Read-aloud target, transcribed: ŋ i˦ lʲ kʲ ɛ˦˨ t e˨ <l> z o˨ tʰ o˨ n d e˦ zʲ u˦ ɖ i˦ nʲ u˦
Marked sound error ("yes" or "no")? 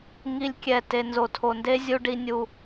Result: yes